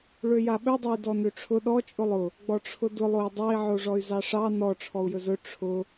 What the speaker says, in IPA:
ɭøjaɓɵdˤoy̯ dɔnøʈ͡ʂʰʊ ɗɔ t͡ʃʼʊlˠʊ | ɡ͡bɔʈ͡ʂʰʊdʊlˠoi̯ dˤɑi̯ʕoʐɔy̯ zɑʂɑ nɔ ʈ͡ʂʰɔu̯jɵzɵ ʈ͡ʂʰʊ

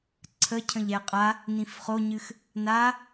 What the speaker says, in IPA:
ǀʰəcʰə̃ʎɛ qʼa | nĩfχoɲɨx | na

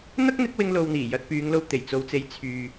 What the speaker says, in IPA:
n̪ɐ˥k̚n̪ɪ˨˥k̚ wɪ˥ŋlo˧wn̪iː˨˩ jɐ˧t̚pyː˨˧ŋlo˧w t̪e˨˩jt͡so˧wt͡se˧j t͡sʰyː˨

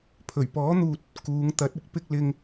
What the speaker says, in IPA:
pʰɵ˨˩ɥpɔː˨˥n̪uː˨t̚ | kuː˨˧ŋt̪ɐ˨˥t̚ ɪ˥k̚pɪ˧k̚ lɪ˧ŋ

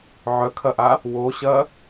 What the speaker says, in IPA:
ʕœkʰɐʔa | woɕɐ

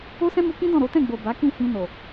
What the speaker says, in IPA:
o˦sɛ̃˦mu˧kĩ˦ dɔ̃˦˨ɾo˨˦tɛ̃˦˨ ɡ͡bo˨ ba˨˦kĩ˦˨hĩ˧no˨

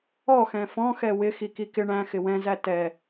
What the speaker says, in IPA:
ɔxɛ̃ fɔ̃xɛ wɪxiki kɪ ɳæ̃xɪ wɛ̃zæ tɛ

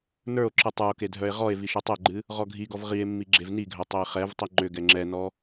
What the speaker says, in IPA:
nə˞o̯ǁɨ tˤə˞o̯ke dʱœe̯ʁɔe̯vi ʃɨtˤɛɡ͡ǃɨ | ʁɔɡʱiɡɔv ʁie̯ mːiɡ͡ǁevniɡʱœ tˤɛe̯χɛvtˤi ŋ͡ǃʏ ɡɛŋ͡ǁɛnɔ

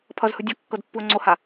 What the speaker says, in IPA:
pʰʌzhɯ dʲɤkːɤdpːuə̯ ŋ͡ǀoha

